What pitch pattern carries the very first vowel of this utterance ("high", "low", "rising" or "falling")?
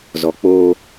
low